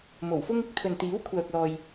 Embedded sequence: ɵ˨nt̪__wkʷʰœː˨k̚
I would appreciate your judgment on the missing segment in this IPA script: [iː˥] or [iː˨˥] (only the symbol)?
iː˨˥